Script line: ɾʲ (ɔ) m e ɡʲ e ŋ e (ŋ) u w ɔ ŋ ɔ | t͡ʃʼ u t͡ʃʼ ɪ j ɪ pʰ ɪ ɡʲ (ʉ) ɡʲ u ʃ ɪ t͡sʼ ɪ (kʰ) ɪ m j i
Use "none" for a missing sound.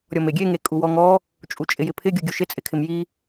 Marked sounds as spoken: ɔ, kʼ, u, kʰ

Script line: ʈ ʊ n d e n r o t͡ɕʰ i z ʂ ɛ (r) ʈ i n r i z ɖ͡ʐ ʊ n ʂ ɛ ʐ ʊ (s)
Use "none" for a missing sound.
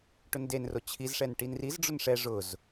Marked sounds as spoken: n, z

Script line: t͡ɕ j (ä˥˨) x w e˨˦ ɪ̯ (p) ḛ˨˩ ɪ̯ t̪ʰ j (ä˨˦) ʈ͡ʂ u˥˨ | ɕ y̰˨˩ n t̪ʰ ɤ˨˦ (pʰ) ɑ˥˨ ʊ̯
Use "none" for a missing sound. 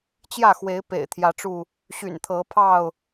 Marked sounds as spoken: ä˥˨, p, ä˨˦, pʰ

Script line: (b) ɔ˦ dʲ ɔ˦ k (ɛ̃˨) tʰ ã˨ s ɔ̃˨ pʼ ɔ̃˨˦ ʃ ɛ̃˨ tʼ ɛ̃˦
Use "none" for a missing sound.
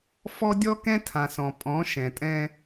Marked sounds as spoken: f, ɛ̃˦

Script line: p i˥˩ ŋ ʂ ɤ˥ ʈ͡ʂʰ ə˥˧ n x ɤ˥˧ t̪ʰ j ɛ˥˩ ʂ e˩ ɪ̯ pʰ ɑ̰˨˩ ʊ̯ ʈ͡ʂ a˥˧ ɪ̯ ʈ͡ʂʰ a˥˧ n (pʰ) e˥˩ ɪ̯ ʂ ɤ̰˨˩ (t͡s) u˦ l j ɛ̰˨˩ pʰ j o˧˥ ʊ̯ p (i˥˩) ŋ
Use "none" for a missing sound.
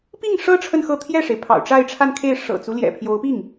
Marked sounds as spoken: kʰ, t͡s, i˥˩

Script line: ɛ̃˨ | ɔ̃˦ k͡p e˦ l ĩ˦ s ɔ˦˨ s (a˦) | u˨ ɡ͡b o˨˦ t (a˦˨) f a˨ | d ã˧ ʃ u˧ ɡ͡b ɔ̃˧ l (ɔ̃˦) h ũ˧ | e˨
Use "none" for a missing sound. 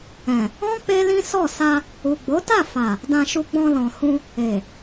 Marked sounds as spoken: a˧, a˦˨, ɔ̃˨

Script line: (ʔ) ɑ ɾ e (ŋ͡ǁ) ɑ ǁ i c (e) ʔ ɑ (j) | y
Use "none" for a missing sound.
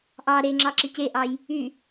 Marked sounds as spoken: ʔ, ŋ͡ǁ, e, j

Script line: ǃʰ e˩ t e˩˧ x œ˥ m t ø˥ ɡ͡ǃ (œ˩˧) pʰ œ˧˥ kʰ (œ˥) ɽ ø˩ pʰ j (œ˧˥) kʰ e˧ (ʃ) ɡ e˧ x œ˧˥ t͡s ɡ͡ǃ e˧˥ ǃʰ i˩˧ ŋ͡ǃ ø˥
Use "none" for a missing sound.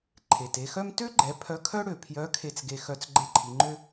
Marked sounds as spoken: ɛ˩˧, œ˥, œ˧˥, t͡s

